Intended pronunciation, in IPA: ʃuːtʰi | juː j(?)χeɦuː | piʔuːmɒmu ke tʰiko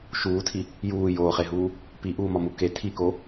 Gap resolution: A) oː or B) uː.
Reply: A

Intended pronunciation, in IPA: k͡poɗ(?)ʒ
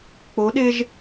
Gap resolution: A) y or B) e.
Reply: B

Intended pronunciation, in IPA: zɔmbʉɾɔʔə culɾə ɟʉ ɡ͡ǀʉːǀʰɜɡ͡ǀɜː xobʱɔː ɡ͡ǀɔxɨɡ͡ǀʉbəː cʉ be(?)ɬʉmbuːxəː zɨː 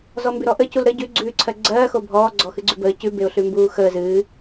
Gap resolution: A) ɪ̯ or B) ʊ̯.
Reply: B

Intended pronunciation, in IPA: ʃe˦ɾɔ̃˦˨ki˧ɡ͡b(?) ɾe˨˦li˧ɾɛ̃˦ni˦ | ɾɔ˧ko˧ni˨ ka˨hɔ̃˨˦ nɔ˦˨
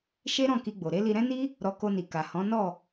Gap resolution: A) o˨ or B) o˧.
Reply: A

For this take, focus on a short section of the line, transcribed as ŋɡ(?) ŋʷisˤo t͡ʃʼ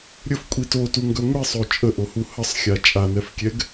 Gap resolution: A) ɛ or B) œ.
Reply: B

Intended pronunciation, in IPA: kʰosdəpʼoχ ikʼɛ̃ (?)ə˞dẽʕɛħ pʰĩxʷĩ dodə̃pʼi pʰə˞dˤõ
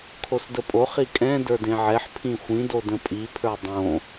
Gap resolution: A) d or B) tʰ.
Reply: A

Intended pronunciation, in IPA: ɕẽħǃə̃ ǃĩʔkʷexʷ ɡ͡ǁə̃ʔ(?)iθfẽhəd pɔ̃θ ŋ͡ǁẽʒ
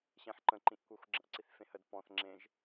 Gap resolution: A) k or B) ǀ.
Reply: B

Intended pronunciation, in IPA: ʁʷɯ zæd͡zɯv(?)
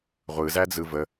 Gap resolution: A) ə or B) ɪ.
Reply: A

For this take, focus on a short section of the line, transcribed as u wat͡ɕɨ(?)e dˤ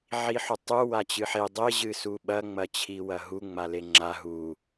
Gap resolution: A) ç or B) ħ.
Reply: B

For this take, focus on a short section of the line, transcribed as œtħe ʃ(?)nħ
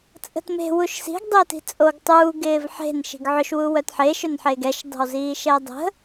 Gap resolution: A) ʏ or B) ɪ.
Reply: A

